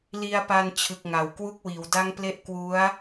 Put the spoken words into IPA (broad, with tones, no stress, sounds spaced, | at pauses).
l i˧ a̯ p a˧ n t͡ɕʰ ɯ˨˩ k̚ ŋ a˩˦ w k w u˥˩ k̚ w iː˩˦ w d a˥˩ ŋ p l e˥˩ ʔ k w u˦˥ a̯